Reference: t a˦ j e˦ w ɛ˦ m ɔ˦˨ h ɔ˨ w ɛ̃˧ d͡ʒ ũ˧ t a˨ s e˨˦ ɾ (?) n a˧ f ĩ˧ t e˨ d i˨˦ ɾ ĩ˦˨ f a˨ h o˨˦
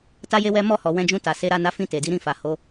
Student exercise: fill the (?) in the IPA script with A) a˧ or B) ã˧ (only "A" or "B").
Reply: A